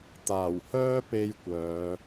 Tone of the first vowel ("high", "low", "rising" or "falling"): low